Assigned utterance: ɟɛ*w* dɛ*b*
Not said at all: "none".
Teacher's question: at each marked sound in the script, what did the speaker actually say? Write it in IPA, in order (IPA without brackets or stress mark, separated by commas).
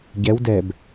w, b